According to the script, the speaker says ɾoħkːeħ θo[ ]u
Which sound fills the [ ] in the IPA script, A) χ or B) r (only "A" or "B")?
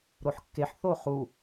A